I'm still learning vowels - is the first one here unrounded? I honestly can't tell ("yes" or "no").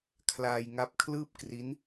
yes